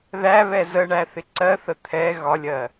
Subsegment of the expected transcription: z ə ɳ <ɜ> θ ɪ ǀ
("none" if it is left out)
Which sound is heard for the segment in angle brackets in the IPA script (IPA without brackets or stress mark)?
æ